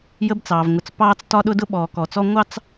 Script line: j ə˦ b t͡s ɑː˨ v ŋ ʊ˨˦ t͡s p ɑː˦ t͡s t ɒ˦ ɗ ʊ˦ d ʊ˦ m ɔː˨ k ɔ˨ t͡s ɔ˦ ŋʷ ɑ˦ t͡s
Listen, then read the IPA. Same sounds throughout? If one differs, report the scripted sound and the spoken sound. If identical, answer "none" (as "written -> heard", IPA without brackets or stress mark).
m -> ɓ